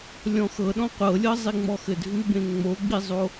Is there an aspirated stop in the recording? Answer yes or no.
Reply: no